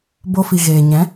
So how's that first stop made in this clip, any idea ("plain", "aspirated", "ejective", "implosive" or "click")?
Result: plain